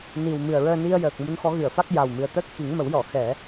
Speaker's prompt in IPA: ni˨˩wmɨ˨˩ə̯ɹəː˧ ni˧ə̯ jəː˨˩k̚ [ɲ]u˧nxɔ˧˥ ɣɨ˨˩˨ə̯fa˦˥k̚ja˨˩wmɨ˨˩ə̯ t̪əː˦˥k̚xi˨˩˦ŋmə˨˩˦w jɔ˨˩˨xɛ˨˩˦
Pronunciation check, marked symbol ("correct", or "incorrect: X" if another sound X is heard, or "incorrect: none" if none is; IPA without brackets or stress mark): incorrect: m